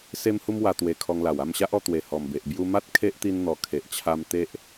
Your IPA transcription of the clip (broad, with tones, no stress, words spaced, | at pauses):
se˦mhu˦mwa˧ t̪we˧kʰɔ˧ŋla˨˩w a˥˧mɕa˦ʔɔ˧t̪we˨˩ hɔ˨˩mbe˨ʔ bju˧ma˦t̚ kʰe˦ʔt̪i˧nn̪ɔ˨˩ kʰe˨ʔt͡ɕʰa˧m t̪e˦ʔ